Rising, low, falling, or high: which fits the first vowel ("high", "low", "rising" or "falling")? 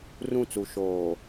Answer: falling